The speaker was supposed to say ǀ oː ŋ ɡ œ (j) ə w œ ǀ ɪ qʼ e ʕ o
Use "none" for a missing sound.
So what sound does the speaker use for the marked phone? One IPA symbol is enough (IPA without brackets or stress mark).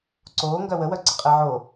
w